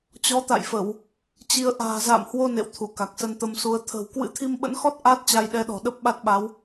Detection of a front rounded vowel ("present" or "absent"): absent